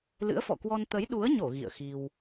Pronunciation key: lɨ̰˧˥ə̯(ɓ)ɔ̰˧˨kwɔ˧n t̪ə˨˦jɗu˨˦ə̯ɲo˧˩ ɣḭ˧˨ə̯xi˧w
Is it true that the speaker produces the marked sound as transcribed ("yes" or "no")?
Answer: no